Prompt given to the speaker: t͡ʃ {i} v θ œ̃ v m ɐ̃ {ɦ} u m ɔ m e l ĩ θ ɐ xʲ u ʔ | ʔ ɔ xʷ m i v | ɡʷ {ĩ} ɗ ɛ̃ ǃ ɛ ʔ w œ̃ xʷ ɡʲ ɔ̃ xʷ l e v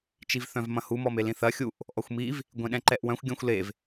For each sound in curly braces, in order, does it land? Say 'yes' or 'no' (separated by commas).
yes, no, no